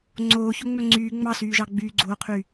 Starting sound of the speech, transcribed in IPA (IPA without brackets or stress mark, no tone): ŋ͡ǀ